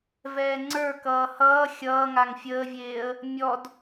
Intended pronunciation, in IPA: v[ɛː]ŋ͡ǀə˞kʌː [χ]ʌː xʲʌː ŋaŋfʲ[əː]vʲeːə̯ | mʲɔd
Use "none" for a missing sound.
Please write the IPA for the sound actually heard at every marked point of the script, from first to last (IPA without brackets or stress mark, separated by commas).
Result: ɛː, h, əː